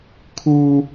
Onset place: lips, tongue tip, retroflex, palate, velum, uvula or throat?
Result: velum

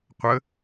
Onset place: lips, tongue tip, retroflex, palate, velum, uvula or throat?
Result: uvula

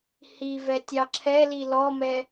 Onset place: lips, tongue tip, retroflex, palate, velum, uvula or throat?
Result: throat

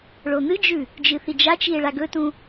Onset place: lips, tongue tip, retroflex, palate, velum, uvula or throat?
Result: retroflex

